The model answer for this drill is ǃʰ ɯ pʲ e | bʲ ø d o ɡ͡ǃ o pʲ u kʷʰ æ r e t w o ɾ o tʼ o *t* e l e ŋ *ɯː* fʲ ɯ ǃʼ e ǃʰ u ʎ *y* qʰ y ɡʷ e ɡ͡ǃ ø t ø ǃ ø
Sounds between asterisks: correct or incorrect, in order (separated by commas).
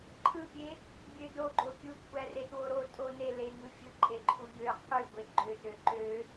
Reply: incorrect, incorrect, incorrect